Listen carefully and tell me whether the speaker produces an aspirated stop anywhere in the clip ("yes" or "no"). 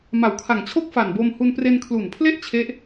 yes